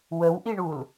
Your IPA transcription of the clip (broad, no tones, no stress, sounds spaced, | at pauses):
w ə w ʔ i ɳ u l